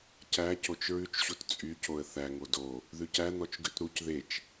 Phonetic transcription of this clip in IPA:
c æ c o t͡ʃ ɹ ʉ t͡ʃ ɕ u t t͡sʼ y c o ə̯ θ æ ŋ o d o | ð ʉ c æ n̪ ɔ t͡ʃ ɡ ʉ t ɾ u c ð e t͡ʃ

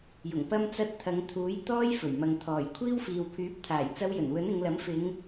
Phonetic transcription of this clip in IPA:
j ʊ˨˩ ŋ p ɐ˧ m t͡s ɐ˧ t̚ t̪ʰ ɐ˨˧ ŋ t̪ʰ uː˨˥ j t̪ ɔː˥ j f ɵ˨˩ ɥ m ɐ˨ ŋ t̪ʰ ɔː˨˩ j kʷʰ iː˥ w f iː˨ w pʰ yː˨˥ p̚ t̪ʰ aː˨˩ j t͡s ɐ˧ w j ɵ˨˩ n w ɵ˨˥ n ɪ˨˧ ŋ l ɐ˨˥ m f ɪ˨˧ ŋ

